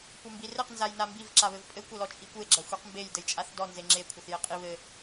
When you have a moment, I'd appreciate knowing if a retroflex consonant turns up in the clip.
no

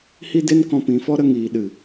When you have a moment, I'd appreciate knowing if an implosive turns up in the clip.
yes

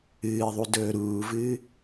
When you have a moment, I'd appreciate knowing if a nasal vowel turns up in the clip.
no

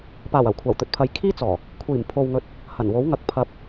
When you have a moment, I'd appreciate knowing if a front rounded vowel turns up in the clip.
no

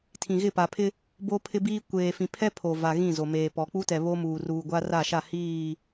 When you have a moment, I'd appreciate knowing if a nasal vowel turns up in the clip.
yes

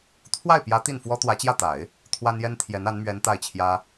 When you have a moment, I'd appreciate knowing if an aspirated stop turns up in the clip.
yes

